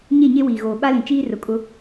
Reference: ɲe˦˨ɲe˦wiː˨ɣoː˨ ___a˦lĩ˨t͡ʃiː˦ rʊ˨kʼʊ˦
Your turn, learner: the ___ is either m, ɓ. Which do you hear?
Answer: ɓ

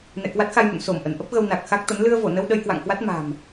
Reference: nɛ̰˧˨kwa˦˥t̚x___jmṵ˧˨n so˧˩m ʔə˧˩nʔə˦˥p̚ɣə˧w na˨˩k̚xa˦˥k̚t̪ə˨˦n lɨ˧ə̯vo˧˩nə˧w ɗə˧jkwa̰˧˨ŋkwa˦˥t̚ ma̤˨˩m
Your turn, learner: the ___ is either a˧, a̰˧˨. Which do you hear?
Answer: a˧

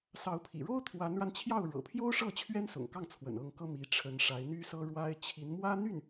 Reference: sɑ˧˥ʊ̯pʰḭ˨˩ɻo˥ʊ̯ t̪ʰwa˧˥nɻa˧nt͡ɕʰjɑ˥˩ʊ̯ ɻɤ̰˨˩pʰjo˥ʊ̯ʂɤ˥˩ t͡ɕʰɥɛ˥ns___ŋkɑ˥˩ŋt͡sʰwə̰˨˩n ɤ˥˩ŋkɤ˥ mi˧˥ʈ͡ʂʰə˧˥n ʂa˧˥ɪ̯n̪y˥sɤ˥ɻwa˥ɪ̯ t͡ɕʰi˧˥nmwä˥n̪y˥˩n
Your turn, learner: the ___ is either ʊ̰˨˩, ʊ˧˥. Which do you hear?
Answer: ʊ̰˨˩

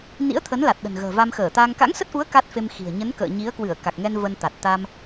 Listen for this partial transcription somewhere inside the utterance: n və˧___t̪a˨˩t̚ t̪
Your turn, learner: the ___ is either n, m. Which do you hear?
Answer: n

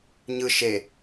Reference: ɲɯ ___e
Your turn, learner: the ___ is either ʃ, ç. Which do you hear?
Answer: ʃ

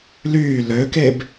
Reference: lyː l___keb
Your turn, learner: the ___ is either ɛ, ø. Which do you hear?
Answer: ø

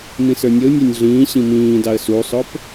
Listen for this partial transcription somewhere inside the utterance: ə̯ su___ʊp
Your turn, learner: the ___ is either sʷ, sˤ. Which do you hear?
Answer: sˤ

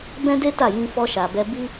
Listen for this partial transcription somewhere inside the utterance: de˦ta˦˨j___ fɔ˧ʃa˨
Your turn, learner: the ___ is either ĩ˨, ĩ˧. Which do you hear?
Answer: ĩ˧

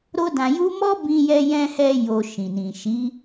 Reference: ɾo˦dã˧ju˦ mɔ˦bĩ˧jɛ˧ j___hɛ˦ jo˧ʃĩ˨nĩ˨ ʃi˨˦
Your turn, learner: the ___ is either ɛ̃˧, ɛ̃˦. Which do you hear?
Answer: ɛ̃˦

